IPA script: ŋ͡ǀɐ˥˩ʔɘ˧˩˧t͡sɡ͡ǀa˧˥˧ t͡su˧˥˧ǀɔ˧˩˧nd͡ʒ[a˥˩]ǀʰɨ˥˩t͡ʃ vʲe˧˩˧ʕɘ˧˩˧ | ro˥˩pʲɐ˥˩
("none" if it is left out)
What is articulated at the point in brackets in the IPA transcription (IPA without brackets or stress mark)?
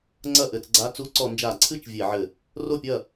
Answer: a˧˩˧